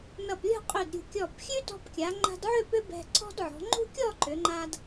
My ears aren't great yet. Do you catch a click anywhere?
yes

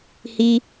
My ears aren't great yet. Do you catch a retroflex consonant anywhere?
no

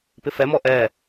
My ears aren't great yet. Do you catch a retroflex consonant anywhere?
no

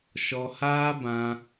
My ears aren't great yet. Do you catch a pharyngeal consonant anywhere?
no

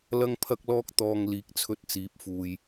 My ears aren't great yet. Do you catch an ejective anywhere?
no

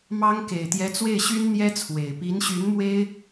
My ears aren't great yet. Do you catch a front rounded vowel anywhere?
yes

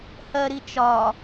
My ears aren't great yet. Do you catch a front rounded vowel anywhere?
no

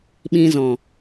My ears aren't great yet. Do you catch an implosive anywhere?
yes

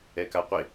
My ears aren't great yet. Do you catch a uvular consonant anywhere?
yes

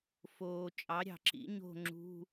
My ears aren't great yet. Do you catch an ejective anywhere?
yes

